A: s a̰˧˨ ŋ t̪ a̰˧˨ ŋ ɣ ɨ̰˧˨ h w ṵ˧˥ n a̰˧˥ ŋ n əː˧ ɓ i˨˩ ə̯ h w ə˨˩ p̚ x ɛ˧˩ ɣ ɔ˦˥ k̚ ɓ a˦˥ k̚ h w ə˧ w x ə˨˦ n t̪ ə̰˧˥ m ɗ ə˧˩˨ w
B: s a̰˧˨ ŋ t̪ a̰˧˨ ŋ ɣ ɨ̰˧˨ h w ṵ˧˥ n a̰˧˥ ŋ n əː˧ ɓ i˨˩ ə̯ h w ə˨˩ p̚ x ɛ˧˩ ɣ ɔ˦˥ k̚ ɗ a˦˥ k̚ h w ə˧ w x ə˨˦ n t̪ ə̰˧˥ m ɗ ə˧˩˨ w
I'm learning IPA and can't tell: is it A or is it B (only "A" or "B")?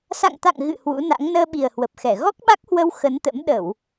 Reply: A